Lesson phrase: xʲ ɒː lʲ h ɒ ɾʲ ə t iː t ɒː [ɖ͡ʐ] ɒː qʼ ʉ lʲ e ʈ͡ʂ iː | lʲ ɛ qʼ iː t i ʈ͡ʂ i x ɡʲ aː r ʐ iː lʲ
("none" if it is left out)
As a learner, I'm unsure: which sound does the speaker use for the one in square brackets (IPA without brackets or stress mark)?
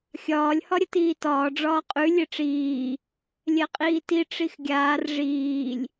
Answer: ɖ͡ʐ